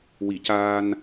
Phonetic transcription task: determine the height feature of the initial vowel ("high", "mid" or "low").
high